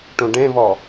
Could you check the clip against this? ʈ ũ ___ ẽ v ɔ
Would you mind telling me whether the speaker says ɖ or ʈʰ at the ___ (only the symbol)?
ɖ